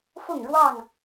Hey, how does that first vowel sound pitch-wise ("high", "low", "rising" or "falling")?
falling